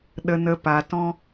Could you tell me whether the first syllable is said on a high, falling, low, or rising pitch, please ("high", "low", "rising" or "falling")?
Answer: low